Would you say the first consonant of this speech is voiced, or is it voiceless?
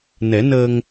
voiced